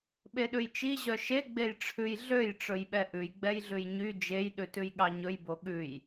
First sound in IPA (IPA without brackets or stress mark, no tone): ɓ